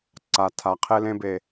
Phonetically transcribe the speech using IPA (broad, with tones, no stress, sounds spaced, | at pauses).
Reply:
ǀ a˨ tʰ a˨ qʰ e˧ l ẽː˦ b e˧